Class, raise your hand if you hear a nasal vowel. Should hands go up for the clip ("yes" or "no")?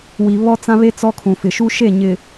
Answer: yes